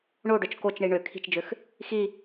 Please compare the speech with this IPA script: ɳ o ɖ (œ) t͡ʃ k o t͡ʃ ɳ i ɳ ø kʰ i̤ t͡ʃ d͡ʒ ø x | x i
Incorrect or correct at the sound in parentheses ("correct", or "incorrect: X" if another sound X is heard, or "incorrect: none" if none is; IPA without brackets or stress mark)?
correct